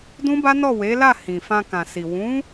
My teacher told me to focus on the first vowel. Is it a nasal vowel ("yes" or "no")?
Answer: yes